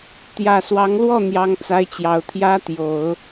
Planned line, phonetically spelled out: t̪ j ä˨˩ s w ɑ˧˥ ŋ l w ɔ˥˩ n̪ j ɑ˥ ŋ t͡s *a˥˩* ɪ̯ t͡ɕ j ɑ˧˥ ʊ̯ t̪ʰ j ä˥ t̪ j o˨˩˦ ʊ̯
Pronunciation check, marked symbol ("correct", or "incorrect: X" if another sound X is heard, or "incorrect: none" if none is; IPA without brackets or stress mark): incorrect: a˥